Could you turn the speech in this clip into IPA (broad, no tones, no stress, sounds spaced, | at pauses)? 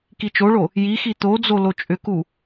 k i t͡ʃ o ɭ o | j i x i t̪ o d͡z o l o t͡ʃʼ ʏ k u